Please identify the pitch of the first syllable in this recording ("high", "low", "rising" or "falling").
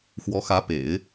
rising